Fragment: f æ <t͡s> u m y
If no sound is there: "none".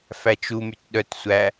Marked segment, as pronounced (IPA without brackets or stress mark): t͡ʃ